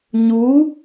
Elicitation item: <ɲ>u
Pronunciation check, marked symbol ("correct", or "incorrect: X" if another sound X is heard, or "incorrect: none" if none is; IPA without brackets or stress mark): correct